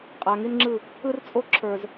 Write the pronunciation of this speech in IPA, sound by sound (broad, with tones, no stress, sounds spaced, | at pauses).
qʼ a˨ ŋ i˦ n ŋ͡ǁ ɯ˦˨ | ɯ˦ r t͡sʼ o˦ ǁʰ ə˞˨ z